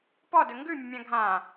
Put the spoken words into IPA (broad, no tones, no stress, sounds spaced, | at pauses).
p ɔ d ɵ ŋ ɡ ʉ mʲ ɵ mʲ ã ɡʱ ã